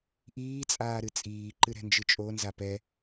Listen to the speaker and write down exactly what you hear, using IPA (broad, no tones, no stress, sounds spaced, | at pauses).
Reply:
ʔ iː t͡sʼ aː ɾ ɨ t͡sʼ iː ǃ ɨ ɾ ɛ̤ n d͡ʒ ɨ t͡ʃʼ o n z a p ɛ